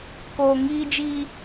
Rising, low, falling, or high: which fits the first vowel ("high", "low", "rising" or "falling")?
low